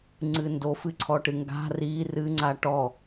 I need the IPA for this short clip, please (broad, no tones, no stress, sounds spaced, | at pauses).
ŋ͡ǀ ɨ n d o f ɨ ǀʰ ɔ ʈ ɨ ŋ ɡ a̤ r i r ɨ ŋ͡ǀ a ʈ ɔ